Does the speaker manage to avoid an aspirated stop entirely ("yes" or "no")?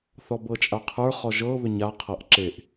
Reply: no